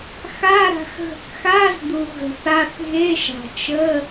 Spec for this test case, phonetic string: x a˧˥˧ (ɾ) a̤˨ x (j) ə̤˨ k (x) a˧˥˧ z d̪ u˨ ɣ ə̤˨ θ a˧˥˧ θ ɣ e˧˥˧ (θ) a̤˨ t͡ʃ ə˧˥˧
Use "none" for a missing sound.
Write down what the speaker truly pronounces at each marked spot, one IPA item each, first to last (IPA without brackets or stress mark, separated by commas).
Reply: ɾ, ɣ, x, ʃ